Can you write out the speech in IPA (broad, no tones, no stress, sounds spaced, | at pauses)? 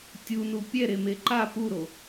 tʲ u n u pʲ ɛ ɾ e m e ǃ a p u ɾ o